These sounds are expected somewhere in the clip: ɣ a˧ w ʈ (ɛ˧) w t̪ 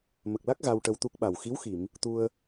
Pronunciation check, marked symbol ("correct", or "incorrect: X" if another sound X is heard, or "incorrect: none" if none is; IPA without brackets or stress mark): incorrect: ə˧